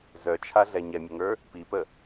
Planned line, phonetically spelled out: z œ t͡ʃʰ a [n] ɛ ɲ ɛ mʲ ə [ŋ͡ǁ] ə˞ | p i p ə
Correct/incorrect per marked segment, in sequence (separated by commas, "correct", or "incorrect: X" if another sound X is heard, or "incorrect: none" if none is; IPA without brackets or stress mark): incorrect: ɮ, incorrect: ŋ